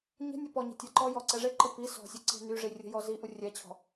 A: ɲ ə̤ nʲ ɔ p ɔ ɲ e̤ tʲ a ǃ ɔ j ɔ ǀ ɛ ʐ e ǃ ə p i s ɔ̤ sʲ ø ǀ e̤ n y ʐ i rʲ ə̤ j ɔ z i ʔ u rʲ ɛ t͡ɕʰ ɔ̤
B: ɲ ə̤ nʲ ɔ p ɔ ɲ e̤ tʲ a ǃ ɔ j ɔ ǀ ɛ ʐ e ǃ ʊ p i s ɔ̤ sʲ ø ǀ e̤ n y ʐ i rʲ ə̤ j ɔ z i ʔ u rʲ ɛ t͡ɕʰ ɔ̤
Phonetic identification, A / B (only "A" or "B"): A